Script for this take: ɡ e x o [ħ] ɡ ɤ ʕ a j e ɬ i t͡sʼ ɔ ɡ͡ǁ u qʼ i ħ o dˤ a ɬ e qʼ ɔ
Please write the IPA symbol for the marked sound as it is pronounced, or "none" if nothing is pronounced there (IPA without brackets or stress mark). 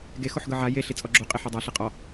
ħ